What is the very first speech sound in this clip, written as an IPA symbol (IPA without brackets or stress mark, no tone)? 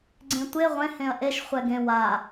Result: ɡ͡ǀ